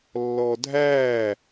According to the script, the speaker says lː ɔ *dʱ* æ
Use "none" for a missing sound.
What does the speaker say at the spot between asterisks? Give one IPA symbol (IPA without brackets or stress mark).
dʱ